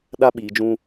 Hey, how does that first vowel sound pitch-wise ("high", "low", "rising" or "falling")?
high